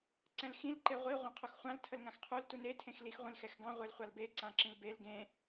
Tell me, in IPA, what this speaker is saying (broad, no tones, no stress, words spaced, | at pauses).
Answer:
ǀɛ̃lxĩl ǃeʁʷi ʁʷãqʰuxχʷãl tʰəlŋãxqʰul tune tʰẽxlix ʁʷĩlxɛxɡɑ̃ ʁʷelχʷalbe ǀãǁĩlbel ɡẽ